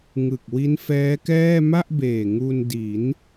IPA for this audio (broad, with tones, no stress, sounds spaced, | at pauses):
ŋ ɯ˨˩ k̚ w i˦˥ n f ɛː˦˥ k ɛː˥˩ m a˥˩ ʔ b eː˨˩ ŋ u˧ n d i˩˦ n